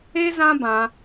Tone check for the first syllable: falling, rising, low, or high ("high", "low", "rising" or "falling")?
high